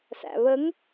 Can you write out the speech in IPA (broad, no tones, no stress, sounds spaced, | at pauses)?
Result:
s æ̰ β ə ŋ